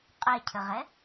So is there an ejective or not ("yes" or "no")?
yes